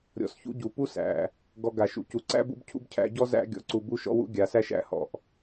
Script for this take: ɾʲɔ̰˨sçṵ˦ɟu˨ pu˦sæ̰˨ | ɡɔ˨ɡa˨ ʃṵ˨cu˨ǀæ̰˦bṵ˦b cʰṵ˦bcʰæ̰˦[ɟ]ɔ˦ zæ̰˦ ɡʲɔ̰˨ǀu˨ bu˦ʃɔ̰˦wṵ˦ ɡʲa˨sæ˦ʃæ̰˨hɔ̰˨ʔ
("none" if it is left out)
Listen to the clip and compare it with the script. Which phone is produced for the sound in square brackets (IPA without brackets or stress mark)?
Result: ɟ